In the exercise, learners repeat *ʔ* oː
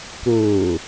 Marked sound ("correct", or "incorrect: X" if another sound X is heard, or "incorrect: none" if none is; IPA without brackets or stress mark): incorrect: k